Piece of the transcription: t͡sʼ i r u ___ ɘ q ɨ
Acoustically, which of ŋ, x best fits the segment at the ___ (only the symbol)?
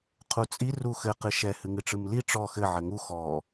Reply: x